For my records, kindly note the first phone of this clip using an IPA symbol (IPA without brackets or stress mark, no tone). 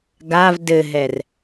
ɡ